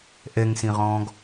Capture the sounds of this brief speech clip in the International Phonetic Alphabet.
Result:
ʔ ɛ ŋ s ĩ ʁ ɔ̃ː ɡ

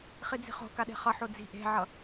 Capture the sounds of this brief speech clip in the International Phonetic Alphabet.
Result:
χ i d͡z i̤ χ o̤ k a ɗ e̤ χ ʌ ħ o d͡z i̤ ʔ e̤ ʕ ʌ

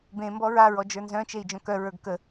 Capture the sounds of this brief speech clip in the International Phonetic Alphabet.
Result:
b ẽ m b ɔ ɹ a ɹ ɔ d͡ʒ ə˞ n z œ̃ t͡ʃ e i̯ d͡ʒ œ̃ k œ ɹ ə˞ ɡ k ə

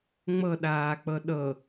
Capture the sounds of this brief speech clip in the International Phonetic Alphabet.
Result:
ŋ͡m ɤ ɗ aː k͡p ɤ ɗ ɤ

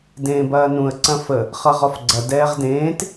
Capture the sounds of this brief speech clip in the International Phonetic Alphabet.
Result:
d ẽː b ɐː n ũ ə̯ ǀ ɐ̃ f ə | χ ʌ ʁ ɔ f ɡ͡ǀ ɐ d ɛː ʁ d ẽː t

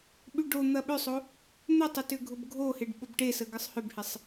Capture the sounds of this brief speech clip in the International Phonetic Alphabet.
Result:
ɓ y ɖ o n̪ ɐ ɓ ʏ sˤ o | n̪ ʏ tˤ ɪ t ʏ ɡʱ ʊ b ɡʱ o h e ɖ ɓ ʊ b ʈ e s ə ɡ ə sˤ h ʏ b h ɪ sˤ

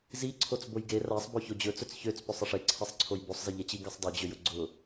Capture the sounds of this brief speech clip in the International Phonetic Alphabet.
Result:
z i ǀʰ o t͡s b o j ɡ e r a sˤ b o ç o d͡ʑ ɵ t͡s ɵ t͡s ç ø t͡s p ɵ sˤ ɘ ʂ e ǀʰ ɛ sˤ ǀʰ o j b o sˤ z ɘ ʎ ɛ t͡ɕ i ɡ ɛ sˤ dˤ ø d͡ʑ ø j ʊ ɡ͡ǀ ʊ

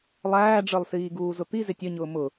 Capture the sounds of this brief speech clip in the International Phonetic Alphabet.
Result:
lˠ æː ɖ͡ʐ ə˞ lˠ s iː ɡ uː z ʊ t̪ i z ɪ tʲ ʌ ɲ ʊː m ʊ

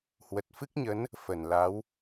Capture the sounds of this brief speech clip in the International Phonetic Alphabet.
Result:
h w ə˨˩ t̚ f ɨ˦˥ k̚ ɲ ə˨˦ n | f ə˧˩ n l a˨˦ w

